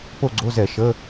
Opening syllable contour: falling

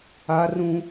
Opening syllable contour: high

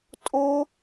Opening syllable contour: high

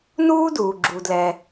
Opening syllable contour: high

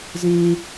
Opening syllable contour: low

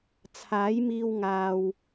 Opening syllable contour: rising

